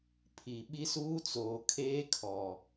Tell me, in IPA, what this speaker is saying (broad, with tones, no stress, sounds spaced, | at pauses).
pʰ i˨ ɓ i˦ s uː˦ t͡s oː˨ kʰ eː˦ kʰ ɔ˨